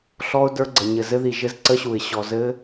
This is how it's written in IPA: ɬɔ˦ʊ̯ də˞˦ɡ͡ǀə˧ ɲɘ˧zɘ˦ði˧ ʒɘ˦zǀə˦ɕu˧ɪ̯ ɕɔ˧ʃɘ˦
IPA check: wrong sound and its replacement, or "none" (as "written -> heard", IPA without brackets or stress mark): ʃ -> z